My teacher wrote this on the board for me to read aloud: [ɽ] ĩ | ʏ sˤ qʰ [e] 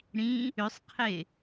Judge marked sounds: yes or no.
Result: yes, yes

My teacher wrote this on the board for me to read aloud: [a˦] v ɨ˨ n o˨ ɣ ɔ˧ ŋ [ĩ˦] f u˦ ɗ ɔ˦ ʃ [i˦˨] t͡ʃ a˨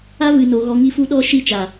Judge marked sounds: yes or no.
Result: yes, no, yes

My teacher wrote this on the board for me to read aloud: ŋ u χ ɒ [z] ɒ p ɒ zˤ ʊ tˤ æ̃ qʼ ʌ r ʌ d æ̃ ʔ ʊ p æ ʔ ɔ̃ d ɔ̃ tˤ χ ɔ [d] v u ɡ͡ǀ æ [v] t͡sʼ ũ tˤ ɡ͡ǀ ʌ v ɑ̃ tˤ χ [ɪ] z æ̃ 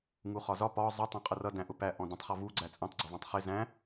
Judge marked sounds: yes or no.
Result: yes, no, no, yes

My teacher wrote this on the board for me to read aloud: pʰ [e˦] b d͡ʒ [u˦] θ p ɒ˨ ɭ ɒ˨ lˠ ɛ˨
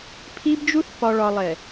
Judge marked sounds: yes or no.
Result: no, yes

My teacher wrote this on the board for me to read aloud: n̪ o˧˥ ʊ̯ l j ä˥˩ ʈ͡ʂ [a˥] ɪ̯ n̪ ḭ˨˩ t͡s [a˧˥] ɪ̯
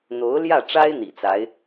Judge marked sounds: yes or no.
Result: yes, yes

